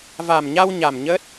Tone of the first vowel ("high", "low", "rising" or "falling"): low